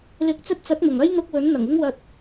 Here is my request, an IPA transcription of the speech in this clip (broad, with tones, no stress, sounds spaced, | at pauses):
l ɪ˨˥ k̚ t͡s ɵ˧ t̚ t͡s ɐ˨˥ t̚ m ʊ˨˩ ŋ ɐ˥ j n̪ ʊ˧ k̚ w ɵ˨˥ n n̪ ɐ˨˩ ŋ ɪ˥ ŋ w ɐ˧ t̚